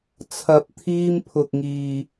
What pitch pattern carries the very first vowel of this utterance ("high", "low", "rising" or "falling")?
low